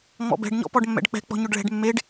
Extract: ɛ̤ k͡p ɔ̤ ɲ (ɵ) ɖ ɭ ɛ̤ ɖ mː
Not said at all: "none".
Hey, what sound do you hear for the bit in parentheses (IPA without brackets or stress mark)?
ɵ